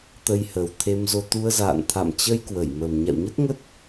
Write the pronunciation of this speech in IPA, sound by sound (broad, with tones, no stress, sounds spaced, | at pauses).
t̪ ə˧ j h ə˨˩ w t̪ʰ e˧ m z o˧ t̪ u˧ ə̯ z a̰ː˧˨ n t̪ʰ a̰˧˨ m t͡ɕ ə˧ j k w ə˧˩ j m ə˨˩ m ɲ a̰˧˨ w ɲ ə˦˥ t̚ ŋ ə˦˥ t̚